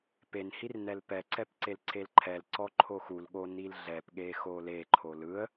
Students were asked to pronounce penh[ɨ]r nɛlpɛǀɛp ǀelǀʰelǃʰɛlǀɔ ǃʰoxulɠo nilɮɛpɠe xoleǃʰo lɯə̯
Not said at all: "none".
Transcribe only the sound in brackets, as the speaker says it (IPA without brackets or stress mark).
i